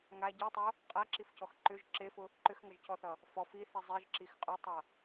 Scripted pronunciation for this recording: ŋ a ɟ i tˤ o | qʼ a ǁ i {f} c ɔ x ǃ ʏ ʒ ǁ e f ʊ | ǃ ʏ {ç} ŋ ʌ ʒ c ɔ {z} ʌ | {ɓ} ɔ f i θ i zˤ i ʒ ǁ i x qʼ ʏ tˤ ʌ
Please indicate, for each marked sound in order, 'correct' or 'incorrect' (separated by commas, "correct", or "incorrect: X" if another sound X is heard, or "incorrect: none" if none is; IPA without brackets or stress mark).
correct, incorrect: x, incorrect: θ, incorrect: f